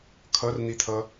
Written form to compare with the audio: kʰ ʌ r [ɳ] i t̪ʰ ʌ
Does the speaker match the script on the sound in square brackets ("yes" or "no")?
no